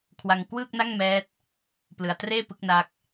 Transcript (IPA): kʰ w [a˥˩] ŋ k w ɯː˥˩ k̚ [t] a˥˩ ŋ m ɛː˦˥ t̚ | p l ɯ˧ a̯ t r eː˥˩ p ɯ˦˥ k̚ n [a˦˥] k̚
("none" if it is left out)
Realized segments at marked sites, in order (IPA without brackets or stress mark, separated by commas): a˧, n, a˦˥